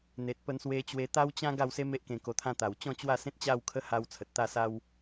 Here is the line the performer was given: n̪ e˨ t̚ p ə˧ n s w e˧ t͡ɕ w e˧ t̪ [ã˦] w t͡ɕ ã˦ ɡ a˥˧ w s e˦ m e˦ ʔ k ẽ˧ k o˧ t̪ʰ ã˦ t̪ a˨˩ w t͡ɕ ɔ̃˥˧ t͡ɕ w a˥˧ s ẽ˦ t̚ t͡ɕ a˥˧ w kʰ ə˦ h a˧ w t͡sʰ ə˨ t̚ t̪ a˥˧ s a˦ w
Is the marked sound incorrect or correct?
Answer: incorrect